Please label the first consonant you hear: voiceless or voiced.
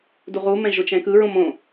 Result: voiced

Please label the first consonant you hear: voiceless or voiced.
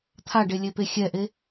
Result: voiceless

